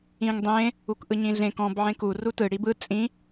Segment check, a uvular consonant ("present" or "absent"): absent